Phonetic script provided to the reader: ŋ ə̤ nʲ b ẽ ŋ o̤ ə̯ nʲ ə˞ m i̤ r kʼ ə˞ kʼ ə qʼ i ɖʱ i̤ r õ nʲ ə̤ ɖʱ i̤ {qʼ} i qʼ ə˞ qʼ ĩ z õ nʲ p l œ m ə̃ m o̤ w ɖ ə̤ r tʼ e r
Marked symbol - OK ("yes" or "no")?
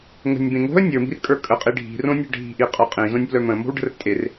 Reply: no